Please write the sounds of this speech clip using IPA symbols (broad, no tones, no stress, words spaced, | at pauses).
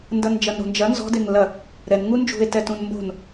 ndɐnd͡ʒɐnɾo̤nd͡ʒɐ nzɔ̤ deŋlɐ | ɾɛn ŋund͡ʒṳe̯ tɛtũnmbo̤n